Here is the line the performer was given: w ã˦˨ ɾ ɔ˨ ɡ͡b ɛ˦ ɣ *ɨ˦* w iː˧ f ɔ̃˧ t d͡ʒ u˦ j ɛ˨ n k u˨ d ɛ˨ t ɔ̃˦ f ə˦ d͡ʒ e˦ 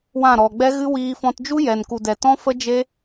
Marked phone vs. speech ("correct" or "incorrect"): correct